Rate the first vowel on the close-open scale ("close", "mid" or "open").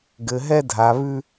mid